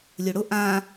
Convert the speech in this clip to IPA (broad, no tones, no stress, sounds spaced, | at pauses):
lʲ ʊ ɽ ʊ ʔ ã